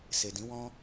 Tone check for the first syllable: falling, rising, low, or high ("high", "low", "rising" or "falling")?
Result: low